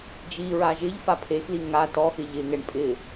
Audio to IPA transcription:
d͡ʒ i ɹ a ʒ ɪ ʎ f a pʰ e x l i ŋ a t ɔ x ɪ ʎ ɪ ŋ ɛ ɳ pʼ ɪ

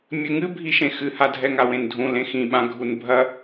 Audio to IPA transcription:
mʲ ɘ ŋ ɨ bʱ i ʃ ẽ x ɨ h a dʱ ɛ ŋ a w ẽ n dʱ ũ l ẽ x ĩ ɓ ã ɡʱ u n bʱ ɐ

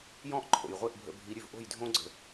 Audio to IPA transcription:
j ɔ̃˥ ʔ ǃʼ o̰˩ j ʁʷ e˥˩ ʔ bʱ ə̰˧ bʱ i˩˥ ɾʲ ʉ˩ v ʔ o̤˥˩ j dʱ õ˥ ɡ͡ǀ ə̤˩

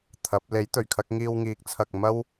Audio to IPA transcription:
t̪ʰ ɐ˨˥ p̚ l e˨˥ j t̪ ɵ˨˩ ɥ kʰ ɐ˧ k̚ ŋ iː˧ w ŋ iː˨˥ k̚ t͡sʰ ɐ˨ k̚ m ɐ˥ w

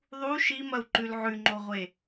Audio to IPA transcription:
ðˤ u ʃ i m ɐ u̯ ǃ ʉ l ʕ ʉ ŋ͡ǃ o ʁʷ e

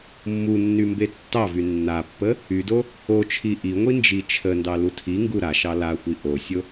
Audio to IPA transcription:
mː u nː y m b e tː ɑ v y nː a pː ə | y d o | o t͡ʃʰ i ʔ i ŋʷ i n d͡ʒ i t͡ʃʰ ə n d ɑ l u tʰ i ŋ ɡ u ɾ a ʃ ɑ l a xʷ i ʔ o sʲ o

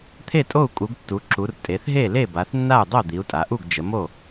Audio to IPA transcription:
t̪ʰ e˥˩ tʼ o˥˩ u̯ kʼ u˩˧ ɡ tː u˩˧ ǁ u˩˧ r tʼ e˩˧ θ ɦ e˥˩ l e˥˩ b a˩˧ θ nː a˥˩ u̯ dˤ o˥˩ d̪ i˩˧ u̯ tʼ a˩˧ ʔ u˥˩ ɡ d͡ʒ ə˩˧ m o˥˩

